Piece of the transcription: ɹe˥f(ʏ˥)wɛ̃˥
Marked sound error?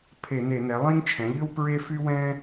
yes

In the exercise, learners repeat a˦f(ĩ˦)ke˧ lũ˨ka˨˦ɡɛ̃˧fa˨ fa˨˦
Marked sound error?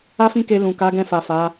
no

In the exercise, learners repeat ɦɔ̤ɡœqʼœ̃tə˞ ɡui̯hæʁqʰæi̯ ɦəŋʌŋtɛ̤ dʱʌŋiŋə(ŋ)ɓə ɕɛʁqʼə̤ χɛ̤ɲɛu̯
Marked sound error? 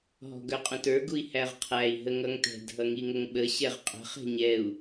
no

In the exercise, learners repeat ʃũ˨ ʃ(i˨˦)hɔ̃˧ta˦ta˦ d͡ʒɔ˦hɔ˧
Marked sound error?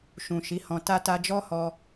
no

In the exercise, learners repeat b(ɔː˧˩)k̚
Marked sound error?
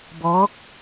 yes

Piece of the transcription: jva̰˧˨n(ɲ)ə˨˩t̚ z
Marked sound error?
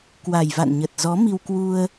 no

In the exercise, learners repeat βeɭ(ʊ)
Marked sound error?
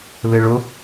no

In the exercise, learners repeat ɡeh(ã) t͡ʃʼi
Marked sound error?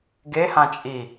no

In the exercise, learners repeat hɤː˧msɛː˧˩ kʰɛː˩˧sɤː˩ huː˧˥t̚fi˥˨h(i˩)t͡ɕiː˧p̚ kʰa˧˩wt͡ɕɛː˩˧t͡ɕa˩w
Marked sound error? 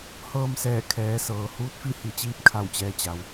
yes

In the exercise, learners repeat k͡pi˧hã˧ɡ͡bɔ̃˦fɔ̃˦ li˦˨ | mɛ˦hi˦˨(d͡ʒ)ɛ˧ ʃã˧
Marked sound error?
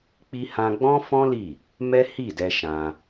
yes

